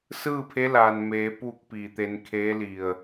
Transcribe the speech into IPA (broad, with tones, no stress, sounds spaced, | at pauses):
s ɯː˥˨ pʰ e˧˥ l aː˩ n m eː˩˧ p uː˥˨ k̚ p iː˧˩ t̪ e˧ n kʰ eː˧˥ l i˧˩ ə̯